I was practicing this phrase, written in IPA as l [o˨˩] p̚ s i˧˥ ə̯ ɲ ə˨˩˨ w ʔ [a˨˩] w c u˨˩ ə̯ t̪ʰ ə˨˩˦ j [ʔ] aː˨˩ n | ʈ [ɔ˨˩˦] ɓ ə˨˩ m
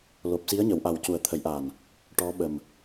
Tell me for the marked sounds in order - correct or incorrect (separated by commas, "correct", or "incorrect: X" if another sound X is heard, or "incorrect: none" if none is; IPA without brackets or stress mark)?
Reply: correct, correct, correct, incorrect: ɔ˧˥